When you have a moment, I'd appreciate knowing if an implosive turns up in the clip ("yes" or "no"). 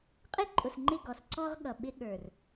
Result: yes